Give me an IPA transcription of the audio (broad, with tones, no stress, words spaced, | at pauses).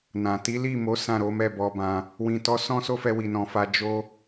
nã˨ ti˨˦li˦˨mo˨˦ sã˦˨ɾo˨˦mɛ˦˨ bɔ˧bã˧ | wĩ˨ tɔ˧sɔ̃˦so˦fɛ˧ wi˧nɔ̃˧fa˦ d͡ʒo˦